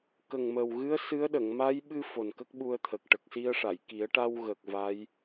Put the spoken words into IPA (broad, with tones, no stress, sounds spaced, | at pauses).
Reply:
k ə˨˩ ŋ m ə˨˩ w ɣ ɨ˧˥ ə̯ s ɨ˧˥ ə̯ ɗ ə˨˩˨ ŋ m a˧˥ j ɓ ɨ˧ f o˨˩ n k ə˦˥ k̚ ɓ u˧ ə̯ t̪ʰ ə˨˩ k̚ ʈ ə˨˩ k̚ s i˧ ə̯ ʂ a˨˩˨ j k i˨˩˦ ə̯ ʈ a˧ w ɣ ə˨˩ k̚ v a˧˥ j